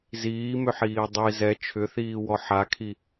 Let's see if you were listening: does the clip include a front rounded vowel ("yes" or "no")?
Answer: yes